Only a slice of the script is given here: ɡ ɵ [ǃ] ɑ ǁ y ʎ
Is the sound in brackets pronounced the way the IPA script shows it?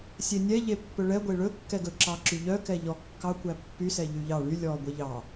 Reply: no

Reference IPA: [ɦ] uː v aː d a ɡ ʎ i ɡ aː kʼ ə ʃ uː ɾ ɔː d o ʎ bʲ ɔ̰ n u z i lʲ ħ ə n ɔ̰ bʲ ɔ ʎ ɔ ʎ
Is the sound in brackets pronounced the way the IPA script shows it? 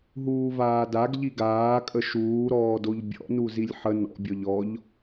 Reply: yes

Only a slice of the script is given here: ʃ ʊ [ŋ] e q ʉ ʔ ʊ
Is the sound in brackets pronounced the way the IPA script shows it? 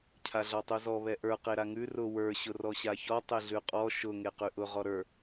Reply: yes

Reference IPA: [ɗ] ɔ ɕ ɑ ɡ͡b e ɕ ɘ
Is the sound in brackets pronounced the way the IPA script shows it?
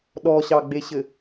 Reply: yes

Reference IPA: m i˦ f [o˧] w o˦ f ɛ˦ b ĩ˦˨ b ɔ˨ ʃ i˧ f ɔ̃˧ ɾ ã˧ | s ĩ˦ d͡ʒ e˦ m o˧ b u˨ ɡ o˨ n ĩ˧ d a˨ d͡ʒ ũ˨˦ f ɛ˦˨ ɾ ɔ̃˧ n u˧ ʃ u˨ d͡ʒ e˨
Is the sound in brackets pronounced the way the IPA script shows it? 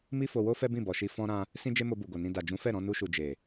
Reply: yes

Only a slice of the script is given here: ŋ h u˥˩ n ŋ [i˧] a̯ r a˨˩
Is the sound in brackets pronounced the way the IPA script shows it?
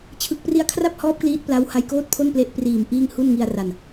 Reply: yes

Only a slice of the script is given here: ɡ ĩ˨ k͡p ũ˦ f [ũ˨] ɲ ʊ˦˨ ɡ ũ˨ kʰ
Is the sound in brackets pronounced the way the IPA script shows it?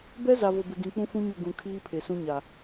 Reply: no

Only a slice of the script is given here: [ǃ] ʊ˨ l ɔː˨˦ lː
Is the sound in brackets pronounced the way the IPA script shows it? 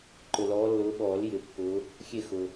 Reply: yes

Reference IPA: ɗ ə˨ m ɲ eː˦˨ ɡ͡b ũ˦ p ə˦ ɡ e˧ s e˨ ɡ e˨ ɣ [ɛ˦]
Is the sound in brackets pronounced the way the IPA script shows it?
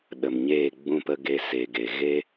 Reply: no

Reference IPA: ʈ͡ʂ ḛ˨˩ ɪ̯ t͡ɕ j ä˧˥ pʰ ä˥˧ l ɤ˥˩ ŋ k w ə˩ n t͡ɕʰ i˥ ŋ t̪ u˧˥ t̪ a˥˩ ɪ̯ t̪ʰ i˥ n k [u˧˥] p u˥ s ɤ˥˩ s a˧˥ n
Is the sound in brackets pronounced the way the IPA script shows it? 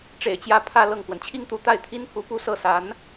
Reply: yes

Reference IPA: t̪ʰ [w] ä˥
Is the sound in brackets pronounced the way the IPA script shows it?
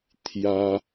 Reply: no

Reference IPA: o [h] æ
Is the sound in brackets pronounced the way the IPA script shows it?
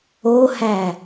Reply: yes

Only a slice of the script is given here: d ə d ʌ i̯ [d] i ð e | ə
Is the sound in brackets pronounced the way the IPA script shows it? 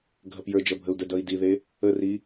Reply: yes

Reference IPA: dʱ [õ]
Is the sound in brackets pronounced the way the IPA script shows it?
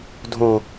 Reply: yes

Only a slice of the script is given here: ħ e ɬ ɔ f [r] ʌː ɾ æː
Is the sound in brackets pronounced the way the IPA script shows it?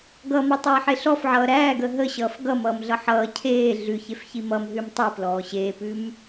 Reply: no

